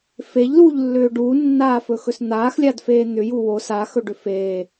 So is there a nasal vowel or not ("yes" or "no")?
no